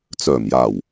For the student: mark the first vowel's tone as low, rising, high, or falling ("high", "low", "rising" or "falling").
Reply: low